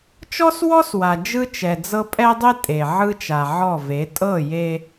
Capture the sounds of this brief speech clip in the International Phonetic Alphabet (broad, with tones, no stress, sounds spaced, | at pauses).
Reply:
t͡ʃ ɔ˦ s w ɔ˦ s w a˨ d͡ʒ ɯ˦ t͡ʃ ɛ˨ d͡z ɤ˦ pʼ ɛ˦ dˤ e˦ tʼ e˨ ʕ ɯ˦ t͡ʃ a˨ ʕ ɔ˦˨ v e˨˦ tʼ ɤ˦˨ j e˦